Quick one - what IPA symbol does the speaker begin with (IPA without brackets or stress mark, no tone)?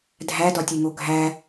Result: dʱ